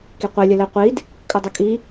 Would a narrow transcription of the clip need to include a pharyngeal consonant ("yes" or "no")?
no